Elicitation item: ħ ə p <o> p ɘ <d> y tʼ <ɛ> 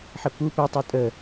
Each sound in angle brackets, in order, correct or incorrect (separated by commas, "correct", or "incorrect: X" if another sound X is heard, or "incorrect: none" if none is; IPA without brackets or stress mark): incorrect: u, incorrect: tˤ, incorrect: ə